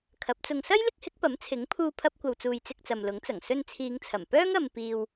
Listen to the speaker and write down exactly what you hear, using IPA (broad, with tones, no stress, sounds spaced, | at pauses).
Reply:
kʰ ɐ˨˥ p̚ t͡s ʊ˧ ŋ s ɐ˥ j l ɪ˥ k̚ h ɪ˨˥ k̚ p ɐ˨˥ m t͡sʰ ɪ˨˥ ŋ pʰ uː˧ pʰ ɐ˥ p̚ kʷ ɐ˧ w t͡s uː˧ j t͡s ɪ˧ k̚ t͡s ɐ˨ m l ʊ˨˥ ŋ t͡s ɐ˨˩ ŋ s ɵ˧ n t͡sʰ iː˨˧ ŋ t͡sʰ ɐ˨˩ m p œː˥ ŋ ɐ˨ m p iː˨ w